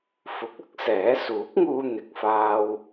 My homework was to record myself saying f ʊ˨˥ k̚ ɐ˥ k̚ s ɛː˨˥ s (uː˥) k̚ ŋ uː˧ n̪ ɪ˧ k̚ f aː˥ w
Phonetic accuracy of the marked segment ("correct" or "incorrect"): incorrect